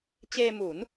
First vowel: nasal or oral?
oral